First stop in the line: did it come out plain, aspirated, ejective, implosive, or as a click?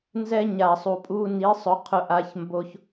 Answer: ejective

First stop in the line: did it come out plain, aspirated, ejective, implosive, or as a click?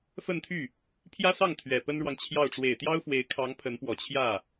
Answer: aspirated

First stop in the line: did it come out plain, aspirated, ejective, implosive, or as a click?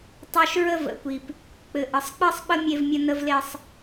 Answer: plain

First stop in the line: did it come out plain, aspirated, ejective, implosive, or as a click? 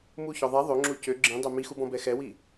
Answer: click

